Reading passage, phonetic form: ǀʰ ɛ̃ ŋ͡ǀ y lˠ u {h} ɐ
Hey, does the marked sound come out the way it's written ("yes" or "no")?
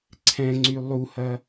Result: yes